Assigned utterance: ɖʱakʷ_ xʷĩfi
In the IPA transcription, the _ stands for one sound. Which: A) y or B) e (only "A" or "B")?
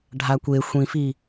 B